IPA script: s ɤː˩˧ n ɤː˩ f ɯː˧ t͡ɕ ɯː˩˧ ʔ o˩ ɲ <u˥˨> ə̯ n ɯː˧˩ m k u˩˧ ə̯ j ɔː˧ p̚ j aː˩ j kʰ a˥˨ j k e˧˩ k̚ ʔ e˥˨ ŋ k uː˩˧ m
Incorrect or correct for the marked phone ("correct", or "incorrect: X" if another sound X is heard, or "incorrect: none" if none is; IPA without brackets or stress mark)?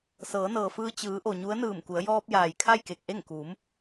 incorrect: u˧˥